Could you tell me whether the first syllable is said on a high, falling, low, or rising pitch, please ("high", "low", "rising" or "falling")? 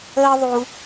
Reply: high